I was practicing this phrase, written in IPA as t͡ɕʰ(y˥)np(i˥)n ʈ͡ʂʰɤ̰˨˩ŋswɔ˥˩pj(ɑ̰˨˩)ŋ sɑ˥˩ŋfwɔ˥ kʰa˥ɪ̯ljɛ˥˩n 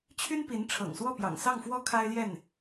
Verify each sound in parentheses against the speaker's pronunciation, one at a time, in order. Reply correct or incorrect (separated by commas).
correct, incorrect, correct